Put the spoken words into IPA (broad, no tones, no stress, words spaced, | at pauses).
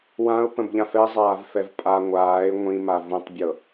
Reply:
wãʊ̯pə̃bʎãf ɛzˤaːvfɛv pʼa ŋʷaːɪ̯ ŋʷĩma vũtˤbʲɤ